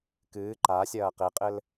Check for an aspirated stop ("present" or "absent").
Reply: absent